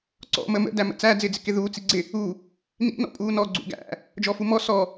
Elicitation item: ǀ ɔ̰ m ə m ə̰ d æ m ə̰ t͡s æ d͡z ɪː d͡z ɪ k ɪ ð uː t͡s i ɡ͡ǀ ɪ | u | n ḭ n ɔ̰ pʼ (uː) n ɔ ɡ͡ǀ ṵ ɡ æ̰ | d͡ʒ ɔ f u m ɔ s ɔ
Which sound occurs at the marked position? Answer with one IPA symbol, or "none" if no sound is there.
uː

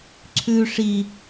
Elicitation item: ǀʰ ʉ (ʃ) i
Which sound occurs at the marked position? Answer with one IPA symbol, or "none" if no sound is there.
ʂ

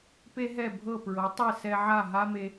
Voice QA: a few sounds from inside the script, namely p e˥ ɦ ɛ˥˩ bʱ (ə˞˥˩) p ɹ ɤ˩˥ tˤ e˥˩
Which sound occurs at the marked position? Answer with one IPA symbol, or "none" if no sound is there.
ɤ˥˩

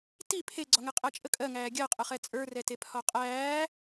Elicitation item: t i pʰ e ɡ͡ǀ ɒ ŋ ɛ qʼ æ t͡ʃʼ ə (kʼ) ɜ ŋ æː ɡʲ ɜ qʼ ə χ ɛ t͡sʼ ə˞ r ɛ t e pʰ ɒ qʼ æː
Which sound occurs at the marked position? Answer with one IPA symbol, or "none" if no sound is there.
kʼ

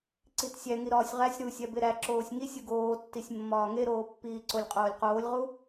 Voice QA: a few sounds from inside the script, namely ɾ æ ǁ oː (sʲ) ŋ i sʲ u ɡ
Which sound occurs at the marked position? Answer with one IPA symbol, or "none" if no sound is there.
sʲ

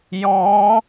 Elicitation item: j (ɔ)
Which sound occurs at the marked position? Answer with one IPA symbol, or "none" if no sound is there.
ɔ̃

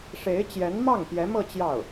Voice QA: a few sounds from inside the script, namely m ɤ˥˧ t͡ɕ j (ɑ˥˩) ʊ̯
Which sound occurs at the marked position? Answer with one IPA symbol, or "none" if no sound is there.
ɑ˥˩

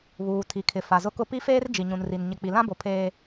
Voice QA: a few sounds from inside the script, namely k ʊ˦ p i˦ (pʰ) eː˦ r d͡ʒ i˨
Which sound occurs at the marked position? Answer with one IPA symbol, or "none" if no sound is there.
f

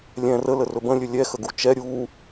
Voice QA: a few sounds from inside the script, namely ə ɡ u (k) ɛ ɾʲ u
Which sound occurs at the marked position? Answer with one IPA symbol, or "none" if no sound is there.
t͡ʃ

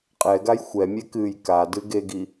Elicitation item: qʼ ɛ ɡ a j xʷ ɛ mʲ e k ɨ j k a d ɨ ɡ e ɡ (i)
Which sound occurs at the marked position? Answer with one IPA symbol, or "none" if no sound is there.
i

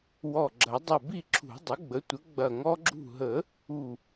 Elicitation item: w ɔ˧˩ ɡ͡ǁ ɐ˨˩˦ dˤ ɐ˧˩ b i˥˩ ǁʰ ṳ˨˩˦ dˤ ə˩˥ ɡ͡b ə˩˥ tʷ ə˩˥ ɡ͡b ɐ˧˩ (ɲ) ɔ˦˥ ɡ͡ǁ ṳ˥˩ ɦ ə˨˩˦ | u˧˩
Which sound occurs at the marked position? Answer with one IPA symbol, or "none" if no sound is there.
ŋ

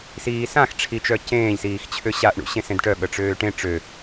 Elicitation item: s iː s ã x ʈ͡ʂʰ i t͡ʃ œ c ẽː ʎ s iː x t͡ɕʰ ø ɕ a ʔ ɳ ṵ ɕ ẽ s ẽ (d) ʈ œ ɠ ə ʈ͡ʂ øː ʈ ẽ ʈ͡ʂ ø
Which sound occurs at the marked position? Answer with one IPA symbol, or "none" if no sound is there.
d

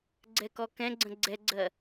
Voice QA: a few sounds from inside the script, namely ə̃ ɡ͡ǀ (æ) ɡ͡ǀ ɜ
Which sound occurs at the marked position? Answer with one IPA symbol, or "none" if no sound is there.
ɛ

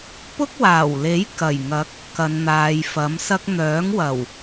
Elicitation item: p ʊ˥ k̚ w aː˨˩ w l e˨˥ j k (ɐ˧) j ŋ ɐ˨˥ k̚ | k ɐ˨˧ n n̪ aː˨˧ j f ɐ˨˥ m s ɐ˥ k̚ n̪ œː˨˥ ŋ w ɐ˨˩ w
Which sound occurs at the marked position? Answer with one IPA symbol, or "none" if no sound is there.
ɐ˨˩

